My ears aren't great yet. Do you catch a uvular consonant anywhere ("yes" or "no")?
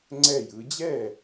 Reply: no